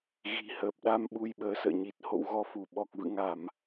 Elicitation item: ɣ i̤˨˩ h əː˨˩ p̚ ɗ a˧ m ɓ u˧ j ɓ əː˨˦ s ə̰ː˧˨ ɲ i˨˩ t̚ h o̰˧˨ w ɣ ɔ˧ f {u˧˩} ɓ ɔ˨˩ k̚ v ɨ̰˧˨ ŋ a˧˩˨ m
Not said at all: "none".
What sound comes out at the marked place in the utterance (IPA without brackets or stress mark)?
u˧˩